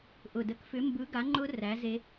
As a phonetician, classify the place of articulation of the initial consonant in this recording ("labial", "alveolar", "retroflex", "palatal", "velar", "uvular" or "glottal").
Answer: glottal